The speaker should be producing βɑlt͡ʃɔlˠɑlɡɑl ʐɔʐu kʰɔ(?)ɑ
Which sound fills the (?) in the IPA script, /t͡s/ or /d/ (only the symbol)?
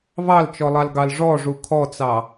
t͡s